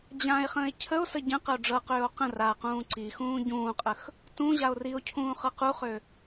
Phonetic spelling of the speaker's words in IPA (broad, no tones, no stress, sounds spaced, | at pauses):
d͡ʑ ã e̯ χ ə̃ː e̯ cʰ ə o̯ s ə ɟ ə̃ q ə o̯ ɖ͡ʐ ɤ q øː o̯ q ə̃ r a q ũː ǀ i x ũː ɟ ũː qʼ ə x | t ũ ʑ a o̯ r i o̯ cʰ ũː χ ɤ q u χ ø